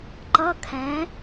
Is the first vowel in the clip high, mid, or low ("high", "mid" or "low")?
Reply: mid